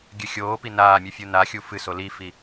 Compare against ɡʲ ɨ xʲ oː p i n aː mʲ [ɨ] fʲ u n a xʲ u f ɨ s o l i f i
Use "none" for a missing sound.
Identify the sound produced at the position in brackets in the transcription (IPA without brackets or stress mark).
ɨ